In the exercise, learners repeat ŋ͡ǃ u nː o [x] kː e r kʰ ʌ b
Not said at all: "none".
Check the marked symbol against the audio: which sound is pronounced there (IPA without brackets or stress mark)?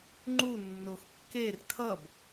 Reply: x